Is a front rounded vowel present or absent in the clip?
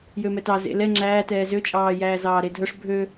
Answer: present